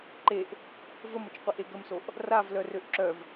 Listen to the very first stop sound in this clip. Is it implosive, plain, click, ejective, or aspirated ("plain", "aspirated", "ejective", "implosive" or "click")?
click